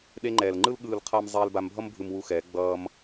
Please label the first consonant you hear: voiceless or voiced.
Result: voiced